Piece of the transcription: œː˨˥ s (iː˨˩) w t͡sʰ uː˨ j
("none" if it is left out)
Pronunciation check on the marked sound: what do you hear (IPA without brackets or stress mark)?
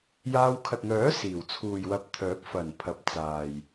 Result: iː˨˩